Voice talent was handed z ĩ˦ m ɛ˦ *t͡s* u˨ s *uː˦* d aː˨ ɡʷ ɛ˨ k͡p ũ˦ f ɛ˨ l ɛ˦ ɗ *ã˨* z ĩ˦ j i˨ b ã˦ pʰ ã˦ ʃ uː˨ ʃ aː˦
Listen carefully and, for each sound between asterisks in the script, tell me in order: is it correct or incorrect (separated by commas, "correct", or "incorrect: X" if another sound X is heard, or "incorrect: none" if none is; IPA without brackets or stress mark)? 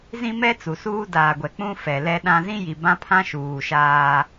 correct, correct, incorrect: ã˦